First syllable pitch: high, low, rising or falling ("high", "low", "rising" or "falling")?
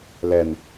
low